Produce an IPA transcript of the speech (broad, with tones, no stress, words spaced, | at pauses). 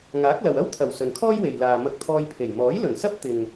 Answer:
ŋaː˨˥k̚lɐ˨w ɐ˥wt̪ʰɐ˨˩w sɵ˨nkʰɔː˥jwe˨j laː˨ mɐ˧k̚t̪ʰɔː˧jpʰe˨˩j mɔː˨˥jlɵ˨˩nsɐ˥p̚ t̪ɪ˨ŋ